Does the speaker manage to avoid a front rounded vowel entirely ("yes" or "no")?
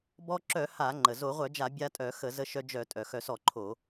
no